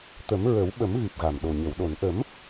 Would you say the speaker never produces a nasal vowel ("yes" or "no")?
yes